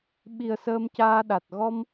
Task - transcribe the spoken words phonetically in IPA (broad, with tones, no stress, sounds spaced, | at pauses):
ɓ i˨˩ ə̯ s əː˧ m c aː˧ ɗ a˨˩ t̚ ɣ ɔ˧ m